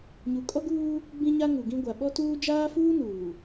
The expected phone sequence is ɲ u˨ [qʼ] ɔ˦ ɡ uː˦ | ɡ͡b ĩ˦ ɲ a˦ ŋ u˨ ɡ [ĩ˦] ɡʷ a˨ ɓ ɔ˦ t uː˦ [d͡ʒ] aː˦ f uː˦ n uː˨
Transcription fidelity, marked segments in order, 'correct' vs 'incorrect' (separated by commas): incorrect, correct, correct